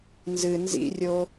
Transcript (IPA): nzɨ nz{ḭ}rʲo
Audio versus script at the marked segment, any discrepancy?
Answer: no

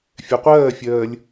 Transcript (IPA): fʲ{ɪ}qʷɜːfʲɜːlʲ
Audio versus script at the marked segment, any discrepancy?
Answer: yes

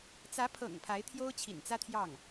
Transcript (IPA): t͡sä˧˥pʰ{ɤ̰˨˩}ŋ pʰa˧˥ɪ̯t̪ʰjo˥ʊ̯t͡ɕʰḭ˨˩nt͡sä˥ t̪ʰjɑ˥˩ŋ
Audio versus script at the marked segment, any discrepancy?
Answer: no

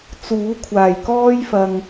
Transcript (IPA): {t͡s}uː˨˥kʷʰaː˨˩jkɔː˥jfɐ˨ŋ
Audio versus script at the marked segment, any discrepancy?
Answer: no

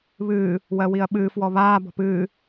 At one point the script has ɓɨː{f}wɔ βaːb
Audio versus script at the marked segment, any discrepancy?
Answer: no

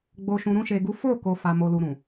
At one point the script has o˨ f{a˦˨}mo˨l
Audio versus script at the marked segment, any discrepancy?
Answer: yes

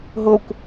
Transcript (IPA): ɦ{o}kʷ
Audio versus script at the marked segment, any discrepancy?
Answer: no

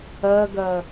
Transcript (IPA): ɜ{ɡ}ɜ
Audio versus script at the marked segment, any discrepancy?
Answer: no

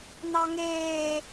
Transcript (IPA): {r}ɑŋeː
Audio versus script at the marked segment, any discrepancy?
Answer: yes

